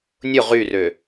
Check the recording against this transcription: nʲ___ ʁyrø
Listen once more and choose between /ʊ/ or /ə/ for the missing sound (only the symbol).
ʊ